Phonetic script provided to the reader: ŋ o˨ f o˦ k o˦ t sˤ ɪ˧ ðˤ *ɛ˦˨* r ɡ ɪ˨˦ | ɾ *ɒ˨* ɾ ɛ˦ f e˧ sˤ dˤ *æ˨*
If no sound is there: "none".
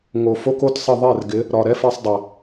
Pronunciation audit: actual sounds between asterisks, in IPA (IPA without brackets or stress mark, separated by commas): ɛ˦˨, ɒ˨, æ˨